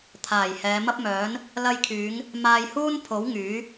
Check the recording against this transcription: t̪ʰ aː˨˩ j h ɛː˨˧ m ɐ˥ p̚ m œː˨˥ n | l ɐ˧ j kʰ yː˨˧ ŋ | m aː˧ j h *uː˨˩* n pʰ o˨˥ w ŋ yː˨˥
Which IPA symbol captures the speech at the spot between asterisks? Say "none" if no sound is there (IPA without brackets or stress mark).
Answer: uː˥